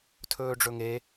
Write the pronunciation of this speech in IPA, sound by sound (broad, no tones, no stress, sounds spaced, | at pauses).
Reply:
tʰ ɵː ɖ͡ʐ ɵ ŋ e